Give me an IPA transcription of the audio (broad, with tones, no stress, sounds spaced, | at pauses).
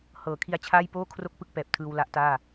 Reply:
h ɤː˩˦ kʰ i˧ a̯ t͡ɕʰ aː˥˩ j p oː˥˩ kʰ r o˥˩ k̚ p ɯ˥˩ k̚ p ɛː˨˩ p̚ tʰ ɯː˧ w l a˦˥ ʔ t aː˥˩